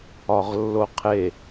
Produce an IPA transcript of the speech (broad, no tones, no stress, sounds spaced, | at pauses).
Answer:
ɒ ʁ lː o qʰ e